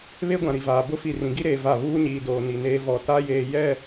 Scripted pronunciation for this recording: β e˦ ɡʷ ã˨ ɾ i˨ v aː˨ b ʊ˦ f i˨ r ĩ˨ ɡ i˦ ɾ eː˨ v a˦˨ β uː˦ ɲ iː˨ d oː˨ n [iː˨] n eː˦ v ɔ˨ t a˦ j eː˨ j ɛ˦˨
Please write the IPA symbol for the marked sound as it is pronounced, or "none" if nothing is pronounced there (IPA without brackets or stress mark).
i˨